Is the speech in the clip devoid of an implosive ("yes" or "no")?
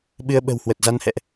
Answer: no